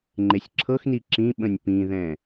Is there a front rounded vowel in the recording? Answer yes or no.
no